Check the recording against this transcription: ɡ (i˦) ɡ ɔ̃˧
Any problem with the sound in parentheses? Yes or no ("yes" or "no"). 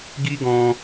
no